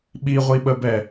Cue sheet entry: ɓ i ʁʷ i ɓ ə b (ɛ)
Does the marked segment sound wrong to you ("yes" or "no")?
no